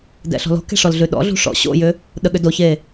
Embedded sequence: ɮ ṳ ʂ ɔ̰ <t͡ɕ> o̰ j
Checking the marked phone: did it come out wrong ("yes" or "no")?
yes